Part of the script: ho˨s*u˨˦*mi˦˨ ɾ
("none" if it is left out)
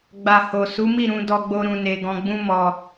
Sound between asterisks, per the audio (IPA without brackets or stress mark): u˨˦